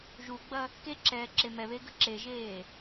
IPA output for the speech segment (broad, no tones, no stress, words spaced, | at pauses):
ʒuɡ͡bɐ | keǁɛːǁe mɛβeɡə̤ ǁeʒeː